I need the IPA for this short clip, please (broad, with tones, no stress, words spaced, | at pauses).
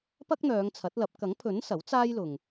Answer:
pɐ˥k̚n̪œː˨˧ŋt͡sʰɐ˨˥t̚lɐ˨˥p̚ kɐ˨˥ŋpʰɵ˨˥n sɐ˨˥w t͡saː˥jlʊ˨ŋ